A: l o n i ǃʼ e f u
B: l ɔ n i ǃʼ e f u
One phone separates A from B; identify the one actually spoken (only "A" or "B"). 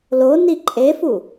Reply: A